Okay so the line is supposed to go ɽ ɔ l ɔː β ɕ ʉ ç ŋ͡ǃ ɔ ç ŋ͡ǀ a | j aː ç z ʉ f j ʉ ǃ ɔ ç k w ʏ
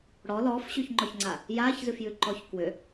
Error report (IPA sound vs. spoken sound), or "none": β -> f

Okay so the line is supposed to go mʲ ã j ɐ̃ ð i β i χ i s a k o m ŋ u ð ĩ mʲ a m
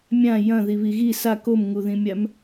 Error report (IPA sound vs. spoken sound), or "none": χ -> ɣ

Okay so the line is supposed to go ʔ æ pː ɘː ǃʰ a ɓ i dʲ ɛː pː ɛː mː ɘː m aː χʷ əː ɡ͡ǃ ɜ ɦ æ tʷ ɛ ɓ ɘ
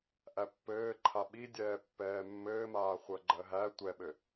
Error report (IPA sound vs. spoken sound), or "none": none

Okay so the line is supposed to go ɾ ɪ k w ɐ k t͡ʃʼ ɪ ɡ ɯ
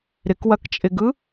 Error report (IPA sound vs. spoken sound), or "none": none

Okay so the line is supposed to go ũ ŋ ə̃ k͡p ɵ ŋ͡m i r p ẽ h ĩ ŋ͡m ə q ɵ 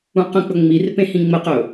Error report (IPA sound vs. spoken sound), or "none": ŋ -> q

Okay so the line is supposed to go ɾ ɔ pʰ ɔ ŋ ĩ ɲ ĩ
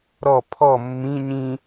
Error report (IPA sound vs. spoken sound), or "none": ŋ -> mː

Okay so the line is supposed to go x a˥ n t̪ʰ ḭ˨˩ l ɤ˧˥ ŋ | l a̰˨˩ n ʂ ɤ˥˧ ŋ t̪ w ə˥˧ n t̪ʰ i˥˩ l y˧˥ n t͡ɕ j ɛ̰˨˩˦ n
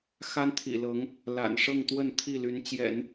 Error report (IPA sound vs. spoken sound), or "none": none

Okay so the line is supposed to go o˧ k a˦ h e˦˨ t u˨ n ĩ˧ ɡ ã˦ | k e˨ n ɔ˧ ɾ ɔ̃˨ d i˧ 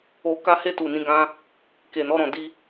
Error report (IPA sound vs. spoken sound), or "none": none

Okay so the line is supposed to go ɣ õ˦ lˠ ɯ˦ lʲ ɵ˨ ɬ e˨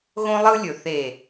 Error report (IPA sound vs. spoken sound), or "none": ɬ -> θ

